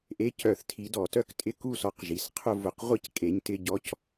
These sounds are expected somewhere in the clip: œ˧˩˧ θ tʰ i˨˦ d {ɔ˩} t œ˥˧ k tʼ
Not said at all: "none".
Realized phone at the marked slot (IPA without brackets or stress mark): ɔ˧˩˧